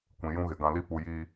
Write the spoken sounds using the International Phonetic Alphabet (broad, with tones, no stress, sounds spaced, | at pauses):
kʷ ĩ˨ j ũ˦ ɣ ɪ˨ ɡ ã˨ l i˦ p u˨ j iː˦